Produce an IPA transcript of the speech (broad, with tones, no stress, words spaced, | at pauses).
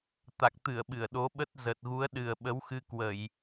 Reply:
t̪a˨˩k̚t̪ɨ˧˩ə̯ ɓɨ˧˩ə̯ɗo˨˦ɓə˦˥t̚ zə˨˩t̚ɣu˨˦ə̯ ɗɨ˨˩ə̯ɓə˨˦wxɨ˧ kwə˧˩˨j